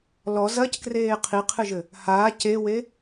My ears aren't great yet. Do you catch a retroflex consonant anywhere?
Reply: no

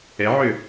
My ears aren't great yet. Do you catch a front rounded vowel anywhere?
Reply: yes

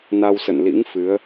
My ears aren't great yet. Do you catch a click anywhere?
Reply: no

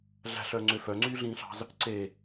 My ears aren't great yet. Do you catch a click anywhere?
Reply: yes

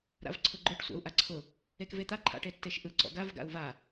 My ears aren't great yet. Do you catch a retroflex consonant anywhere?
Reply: yes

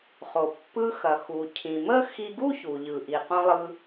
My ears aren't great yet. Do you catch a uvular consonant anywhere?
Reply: yes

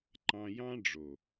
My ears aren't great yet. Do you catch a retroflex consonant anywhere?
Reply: yes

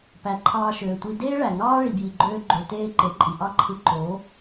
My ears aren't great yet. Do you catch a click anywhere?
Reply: yes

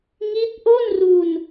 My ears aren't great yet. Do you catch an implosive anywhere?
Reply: no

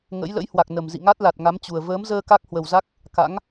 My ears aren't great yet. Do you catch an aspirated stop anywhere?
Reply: no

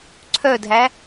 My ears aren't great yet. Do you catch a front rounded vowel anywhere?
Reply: yes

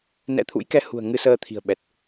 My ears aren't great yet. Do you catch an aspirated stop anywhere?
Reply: yes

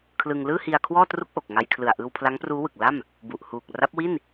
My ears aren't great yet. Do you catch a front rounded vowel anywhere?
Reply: no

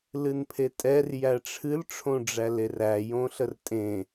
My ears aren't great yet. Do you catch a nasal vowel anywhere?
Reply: yes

